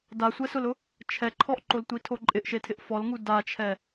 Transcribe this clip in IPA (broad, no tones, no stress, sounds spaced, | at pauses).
d a sʷ ɛ s ʊ l ʊ | t͡ʃʰ ɛ ǃʰ ɔ ʔ ǃ o l tʷ i tʰ o ǃʼ ɪ ʔ ʃ e tʰ ɪ ʔ f ɔ l ŋ u d a t͡ʃʰ ɛ